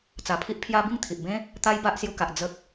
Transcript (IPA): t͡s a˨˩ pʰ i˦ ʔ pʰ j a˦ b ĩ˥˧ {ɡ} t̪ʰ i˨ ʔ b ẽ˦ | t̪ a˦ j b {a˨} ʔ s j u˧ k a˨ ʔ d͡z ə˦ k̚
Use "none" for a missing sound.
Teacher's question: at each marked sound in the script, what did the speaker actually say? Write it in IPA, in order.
ŋ, a˦

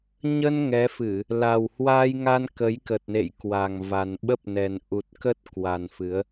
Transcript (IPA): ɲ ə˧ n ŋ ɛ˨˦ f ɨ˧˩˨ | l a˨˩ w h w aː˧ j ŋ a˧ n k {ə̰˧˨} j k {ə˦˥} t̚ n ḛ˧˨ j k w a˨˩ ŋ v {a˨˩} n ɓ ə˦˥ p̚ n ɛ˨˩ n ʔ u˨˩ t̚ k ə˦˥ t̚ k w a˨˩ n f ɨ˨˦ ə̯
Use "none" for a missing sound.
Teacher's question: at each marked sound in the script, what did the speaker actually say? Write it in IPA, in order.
ə˨˦, ə˨˩, a˨˩

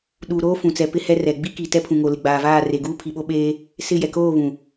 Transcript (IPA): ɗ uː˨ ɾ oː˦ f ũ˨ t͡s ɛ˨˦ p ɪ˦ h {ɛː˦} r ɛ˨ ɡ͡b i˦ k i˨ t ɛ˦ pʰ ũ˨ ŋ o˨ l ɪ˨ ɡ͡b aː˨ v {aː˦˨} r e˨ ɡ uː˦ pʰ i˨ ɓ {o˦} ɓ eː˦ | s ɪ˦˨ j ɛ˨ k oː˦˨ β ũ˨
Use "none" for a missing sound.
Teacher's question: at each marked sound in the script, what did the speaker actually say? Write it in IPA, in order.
ɛ˦, aː˦˨, o˦

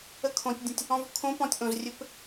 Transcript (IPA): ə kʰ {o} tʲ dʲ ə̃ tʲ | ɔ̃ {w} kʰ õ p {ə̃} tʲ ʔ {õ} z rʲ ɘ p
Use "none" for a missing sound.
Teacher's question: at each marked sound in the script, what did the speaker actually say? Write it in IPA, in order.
õ, v, ɔ̃, õ

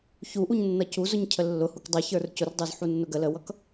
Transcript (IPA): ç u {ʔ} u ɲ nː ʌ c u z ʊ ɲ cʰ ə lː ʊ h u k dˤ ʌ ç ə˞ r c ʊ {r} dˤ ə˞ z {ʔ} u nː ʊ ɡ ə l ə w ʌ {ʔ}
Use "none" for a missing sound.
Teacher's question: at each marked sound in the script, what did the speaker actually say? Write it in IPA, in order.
ʔ, r, ħ, k

